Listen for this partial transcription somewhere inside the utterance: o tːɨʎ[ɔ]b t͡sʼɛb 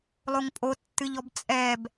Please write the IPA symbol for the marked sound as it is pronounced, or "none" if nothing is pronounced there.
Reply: ɔ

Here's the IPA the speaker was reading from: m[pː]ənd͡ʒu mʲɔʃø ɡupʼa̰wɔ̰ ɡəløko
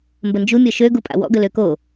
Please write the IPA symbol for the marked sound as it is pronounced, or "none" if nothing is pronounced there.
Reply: b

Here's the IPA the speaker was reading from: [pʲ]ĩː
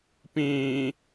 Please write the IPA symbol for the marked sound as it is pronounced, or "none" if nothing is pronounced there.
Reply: p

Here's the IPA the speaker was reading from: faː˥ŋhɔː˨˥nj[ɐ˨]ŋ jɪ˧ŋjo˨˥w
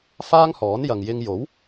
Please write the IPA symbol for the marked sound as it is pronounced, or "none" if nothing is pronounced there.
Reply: ɐ˨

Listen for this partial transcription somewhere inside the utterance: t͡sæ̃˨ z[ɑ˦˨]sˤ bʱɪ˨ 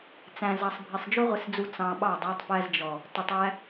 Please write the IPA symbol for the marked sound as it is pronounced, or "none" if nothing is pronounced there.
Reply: ɑ˨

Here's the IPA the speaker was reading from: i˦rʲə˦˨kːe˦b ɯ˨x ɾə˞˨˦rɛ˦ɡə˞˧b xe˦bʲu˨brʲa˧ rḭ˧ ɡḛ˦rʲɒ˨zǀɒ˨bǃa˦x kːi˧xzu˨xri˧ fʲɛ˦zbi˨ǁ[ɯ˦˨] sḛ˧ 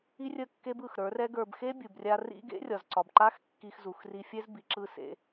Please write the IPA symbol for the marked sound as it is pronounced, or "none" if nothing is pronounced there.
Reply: ɯ˦˨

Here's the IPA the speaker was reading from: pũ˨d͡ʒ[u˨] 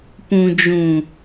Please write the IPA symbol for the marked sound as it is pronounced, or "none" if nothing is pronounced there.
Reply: ũ˨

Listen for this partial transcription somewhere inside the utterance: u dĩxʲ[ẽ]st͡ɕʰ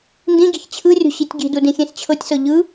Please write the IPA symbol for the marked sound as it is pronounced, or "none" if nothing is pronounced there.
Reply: ẽ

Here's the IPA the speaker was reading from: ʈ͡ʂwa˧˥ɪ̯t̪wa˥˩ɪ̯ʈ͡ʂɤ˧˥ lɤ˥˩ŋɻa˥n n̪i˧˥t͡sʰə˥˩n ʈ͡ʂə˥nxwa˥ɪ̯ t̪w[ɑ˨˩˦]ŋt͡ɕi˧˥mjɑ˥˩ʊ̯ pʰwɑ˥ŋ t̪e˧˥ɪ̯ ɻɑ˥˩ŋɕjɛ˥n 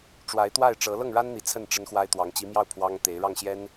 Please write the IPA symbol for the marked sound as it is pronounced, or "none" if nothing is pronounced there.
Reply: ɑ˧˥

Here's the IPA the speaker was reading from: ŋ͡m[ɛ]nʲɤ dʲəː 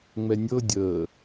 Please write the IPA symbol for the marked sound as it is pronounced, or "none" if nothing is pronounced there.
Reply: ɛ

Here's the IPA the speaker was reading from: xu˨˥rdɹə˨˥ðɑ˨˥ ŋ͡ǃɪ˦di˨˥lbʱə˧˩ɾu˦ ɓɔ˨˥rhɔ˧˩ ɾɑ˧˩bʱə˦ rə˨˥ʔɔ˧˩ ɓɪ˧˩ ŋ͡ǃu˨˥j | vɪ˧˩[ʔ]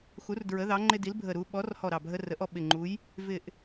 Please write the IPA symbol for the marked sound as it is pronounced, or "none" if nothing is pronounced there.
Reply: ʔ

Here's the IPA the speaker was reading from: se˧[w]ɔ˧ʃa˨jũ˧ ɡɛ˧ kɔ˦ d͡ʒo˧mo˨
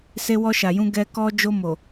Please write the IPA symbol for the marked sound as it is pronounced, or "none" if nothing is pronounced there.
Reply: w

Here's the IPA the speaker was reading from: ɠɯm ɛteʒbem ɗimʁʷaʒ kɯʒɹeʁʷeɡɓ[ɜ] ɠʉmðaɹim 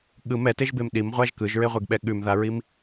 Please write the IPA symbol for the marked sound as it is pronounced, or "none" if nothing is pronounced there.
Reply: ɛ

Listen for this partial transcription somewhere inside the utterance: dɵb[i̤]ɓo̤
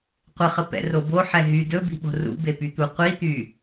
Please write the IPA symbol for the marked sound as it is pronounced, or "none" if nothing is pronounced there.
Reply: i̤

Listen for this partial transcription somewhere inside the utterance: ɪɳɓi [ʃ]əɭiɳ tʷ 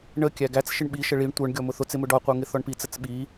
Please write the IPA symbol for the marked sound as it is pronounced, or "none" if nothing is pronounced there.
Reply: ʃ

